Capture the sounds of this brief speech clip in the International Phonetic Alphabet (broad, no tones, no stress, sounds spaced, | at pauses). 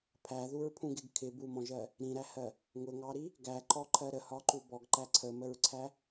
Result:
pʰ æ ð u ɹ pʰ ũ ɡ ɪ ɡ kʰ ɪ b u m ɔ̃ ʒ ɜ | ɾ ĩ ɾ æ h ɜ | ŋ ʊ ŋ ɑ ɾ i | ɡ æ ǃ ɔ ǃʰ ɜ ɾ ə h ɒ ǃ u b ɔ ɡ ǃ æ ǀʰ ə m ə ɹ ǀʰ æ